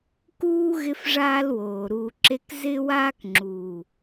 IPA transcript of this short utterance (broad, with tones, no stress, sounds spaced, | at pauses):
k uː˦ ɣ ɪ˦ f ʐ aː˦ l w oː˨ ɾ uː˨ ǁ e˧ k z ɪ˦ w aː˦ k ŋ͡ǁ uː˨